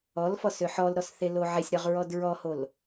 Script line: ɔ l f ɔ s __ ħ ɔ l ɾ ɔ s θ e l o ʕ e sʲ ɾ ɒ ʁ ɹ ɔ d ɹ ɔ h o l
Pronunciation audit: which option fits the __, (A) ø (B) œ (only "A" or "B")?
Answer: A